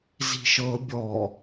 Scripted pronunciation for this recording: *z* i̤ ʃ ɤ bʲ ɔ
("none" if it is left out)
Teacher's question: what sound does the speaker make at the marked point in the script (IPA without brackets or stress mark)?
z